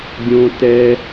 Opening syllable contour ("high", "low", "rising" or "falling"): high